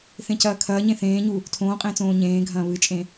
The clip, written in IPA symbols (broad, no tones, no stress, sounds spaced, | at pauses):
θ ẽ c ɐː kʰ ɐː ɲ ẽ θ ẽː ɲ u | tʰ õː qʼ ẽː t͡s õː ɲ ẽː ɡʱ ɐ̃ː β ɨ t͡ʃʼ ẽ